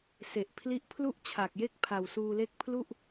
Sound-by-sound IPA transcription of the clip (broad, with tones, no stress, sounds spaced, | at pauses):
s e˨˩ ʔ pʰ l i˦˥ ʔ pʰ l u˥˩ ʔ t͡ɕʰ a˨˩ k̚ j e˥˩ k̚ pʰ a˨˩ w s uː˧ l e˥˩ k̚ pʰ l u˥˩ ʔ